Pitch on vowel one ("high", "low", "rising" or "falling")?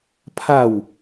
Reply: falling